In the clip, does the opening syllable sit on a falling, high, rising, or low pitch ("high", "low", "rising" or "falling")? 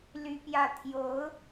high